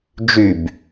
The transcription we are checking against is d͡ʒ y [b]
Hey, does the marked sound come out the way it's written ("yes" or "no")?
yes